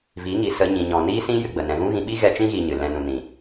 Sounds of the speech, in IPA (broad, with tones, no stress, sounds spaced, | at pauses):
v i˨˦ ŋ i˨ s ə˧ ɲ ĩ˨ ɲ ɔ̃˨ n iː˦ s ĩ˦ j ɨ˧ ɡ͡b ə˨ n ɛ̃˧ ɣ ũ˦ ɣ ĩ˧ ɓ i˦ ɣ ɛ˧ t͡ʃ ĩ˦ ɣ iː˧ ɲ ɨ˨ l ɛ̃˧ n ũ˨ n ĩ˨